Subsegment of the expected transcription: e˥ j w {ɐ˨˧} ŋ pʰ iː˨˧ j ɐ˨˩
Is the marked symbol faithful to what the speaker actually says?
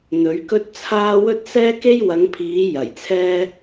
yes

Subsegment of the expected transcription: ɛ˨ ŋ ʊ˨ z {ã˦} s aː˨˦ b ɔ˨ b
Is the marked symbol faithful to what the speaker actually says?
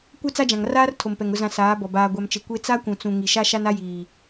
no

